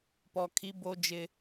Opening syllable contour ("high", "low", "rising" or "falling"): low